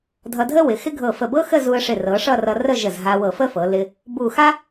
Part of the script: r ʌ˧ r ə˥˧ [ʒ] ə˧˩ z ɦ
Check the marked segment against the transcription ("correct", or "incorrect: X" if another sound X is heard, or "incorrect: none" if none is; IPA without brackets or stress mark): correct